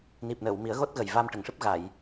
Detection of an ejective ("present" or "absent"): absent